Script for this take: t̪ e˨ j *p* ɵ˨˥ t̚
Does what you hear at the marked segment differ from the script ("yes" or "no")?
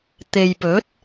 no